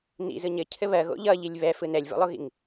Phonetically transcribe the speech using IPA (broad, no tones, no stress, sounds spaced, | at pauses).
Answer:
n ḭ z ɯ ɲ ɘ cʰ ɘ β ɜ ɣ o̰ ʎ ʌ ʎ i lʲ β ɛ f ɯ n ɛ lʲ v o̰ lˠ o ɣ ḭ ŋ